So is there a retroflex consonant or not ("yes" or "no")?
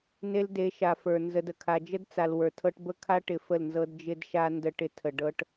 yes